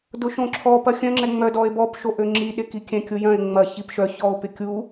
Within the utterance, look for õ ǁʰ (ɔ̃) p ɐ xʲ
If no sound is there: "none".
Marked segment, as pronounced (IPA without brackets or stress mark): ɔ